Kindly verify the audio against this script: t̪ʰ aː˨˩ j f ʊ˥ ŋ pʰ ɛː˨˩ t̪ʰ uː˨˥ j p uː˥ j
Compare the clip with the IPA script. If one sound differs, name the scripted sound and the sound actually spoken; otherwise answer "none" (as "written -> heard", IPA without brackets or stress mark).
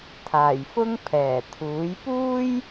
none